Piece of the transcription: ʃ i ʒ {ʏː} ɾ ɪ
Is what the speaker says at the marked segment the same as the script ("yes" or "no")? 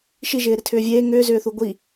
no